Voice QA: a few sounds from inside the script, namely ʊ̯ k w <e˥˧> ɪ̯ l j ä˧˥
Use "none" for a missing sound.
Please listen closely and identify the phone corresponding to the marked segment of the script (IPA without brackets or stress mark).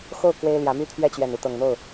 e˥